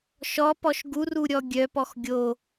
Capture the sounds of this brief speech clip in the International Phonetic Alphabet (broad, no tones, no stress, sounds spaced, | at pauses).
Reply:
ʃ ɔ p ɔ ʃ ɡ u r u ɾʲ ɔ ɡʲ œ p ɔ x ɡʲ o